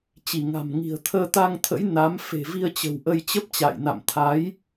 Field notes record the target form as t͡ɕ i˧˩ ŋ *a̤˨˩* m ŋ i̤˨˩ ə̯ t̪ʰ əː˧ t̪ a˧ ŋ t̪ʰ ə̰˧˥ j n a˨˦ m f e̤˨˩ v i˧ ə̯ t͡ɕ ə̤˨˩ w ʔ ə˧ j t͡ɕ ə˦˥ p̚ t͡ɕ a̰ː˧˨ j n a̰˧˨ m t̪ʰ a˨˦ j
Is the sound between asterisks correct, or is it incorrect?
correct